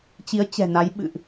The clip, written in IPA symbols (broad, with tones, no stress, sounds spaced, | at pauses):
t͡ɕ i˨˦ ə̯ t͡ɕ ɛ̤˨˩ n a˨˦ j ɓ ɨ̰˧˨ ʔ